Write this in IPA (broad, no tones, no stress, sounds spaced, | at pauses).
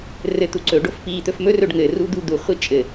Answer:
r ɘ t̪ u ǀ ɵ ɖ o f p i t̪ ɵ f m ɵ r ɵ ɖ ŋ ɘ r u d̪ u d̪ u χʷ i t͡ʃʼ ɘ